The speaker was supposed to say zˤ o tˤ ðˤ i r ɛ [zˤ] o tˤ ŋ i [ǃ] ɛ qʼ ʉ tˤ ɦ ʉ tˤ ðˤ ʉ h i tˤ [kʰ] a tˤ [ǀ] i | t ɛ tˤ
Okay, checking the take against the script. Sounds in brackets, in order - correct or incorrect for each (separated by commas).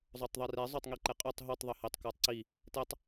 correct, correct, incorrect, correct